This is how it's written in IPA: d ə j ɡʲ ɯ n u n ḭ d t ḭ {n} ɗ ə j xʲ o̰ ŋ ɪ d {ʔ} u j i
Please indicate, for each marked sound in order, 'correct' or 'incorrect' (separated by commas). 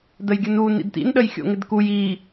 correct, incorrect